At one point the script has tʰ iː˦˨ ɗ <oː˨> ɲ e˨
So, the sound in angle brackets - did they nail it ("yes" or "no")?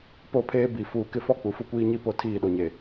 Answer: no